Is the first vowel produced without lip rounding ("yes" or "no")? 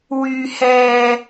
no